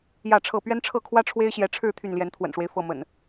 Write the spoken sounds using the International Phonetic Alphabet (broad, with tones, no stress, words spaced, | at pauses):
jä˥˨ʈ͡ʂʰɤ˥˨ pɥɛ˦nʈ͡ʂʰɤ˥˨kʰwä˦ ʈ͡ʂʰwe˦ɪ̯ɕjɛ˨˦ʈ͡ʂʰɻ̩˥˨ t̪ʰy˥˨nljɛ˨˦nt̪ʰwə̰˨˩nʂwe˦ɪ̯ fɤ˥˨ mə̰˨˩n